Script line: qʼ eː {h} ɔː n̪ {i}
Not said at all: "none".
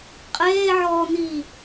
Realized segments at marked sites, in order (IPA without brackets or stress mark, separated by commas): ʕ, iː